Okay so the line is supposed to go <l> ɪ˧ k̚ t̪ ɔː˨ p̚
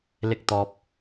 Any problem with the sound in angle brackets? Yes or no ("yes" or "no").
no